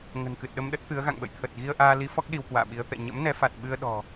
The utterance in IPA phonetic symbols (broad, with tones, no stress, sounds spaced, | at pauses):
ŋ ə̤˨˩ n k ɨ˨˩ t̚ ɗ ə˧ m ɗ ə˦˥ t̚ t̪ ɨ˨˦ ə̯ ɣ a̰˧˨ ŋ ɓ ə̰˧˨ j t̪ʰ ə˨˩ t̚ ɣ i˧ ə̯ ʔ aː˧ l i˨˦ f ɔ˦˥ k̚ ɗ i˧ w k w a̰ː˧˨ ɓ i˨˦ ə̯ t̪ ɛ̰˧˨ ɲ ə̰˧˥ m n ɛ˨˦ f a˨˩ t̚ ɓ ɨ˧ ə̯ ɗ ɔ̤˨˩